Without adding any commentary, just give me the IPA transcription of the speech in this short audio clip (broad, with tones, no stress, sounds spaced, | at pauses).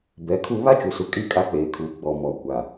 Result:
b ɛ˨˦ kʰ u˦ β a˦ t͡ʃ u˨ s u˨ kʼ i˦˨ kʼ a˦ k͡p eː˨ kʰ uː˨ ɡ͡b ɔ˨ m ɔ˨ kʷ a˨